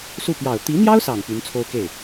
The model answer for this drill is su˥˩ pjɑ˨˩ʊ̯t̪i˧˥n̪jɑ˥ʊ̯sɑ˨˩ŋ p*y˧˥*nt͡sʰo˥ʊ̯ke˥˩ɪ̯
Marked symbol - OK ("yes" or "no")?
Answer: yes